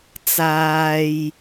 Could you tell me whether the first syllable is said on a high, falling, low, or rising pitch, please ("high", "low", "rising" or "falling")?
low